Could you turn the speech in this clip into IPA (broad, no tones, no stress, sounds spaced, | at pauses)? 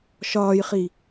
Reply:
ʃ ɒː j χ i